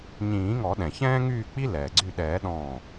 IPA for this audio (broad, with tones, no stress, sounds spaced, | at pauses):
ɲ ĩː˨˩˦ ŋ ɔ˨˩˦ ɗ ɛ̃˩ ç ɛ̃ː˥ ŋ yː˥˨ k͡p i˥ l ɛː˩ ɡ͡ǀ y˥˨ ɗ ɛː˨˩˦ ɗ ɔ̃ː˧˩